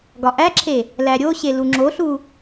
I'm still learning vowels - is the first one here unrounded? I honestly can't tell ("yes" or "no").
no